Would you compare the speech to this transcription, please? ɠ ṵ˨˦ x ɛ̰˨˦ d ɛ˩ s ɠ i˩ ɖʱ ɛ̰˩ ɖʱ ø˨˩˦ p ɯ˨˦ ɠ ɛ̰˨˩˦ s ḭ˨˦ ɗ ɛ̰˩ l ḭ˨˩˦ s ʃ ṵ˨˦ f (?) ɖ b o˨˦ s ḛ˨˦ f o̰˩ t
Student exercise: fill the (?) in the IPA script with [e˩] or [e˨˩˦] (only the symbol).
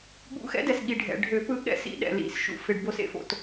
e˩